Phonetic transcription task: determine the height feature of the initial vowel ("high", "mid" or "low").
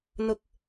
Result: high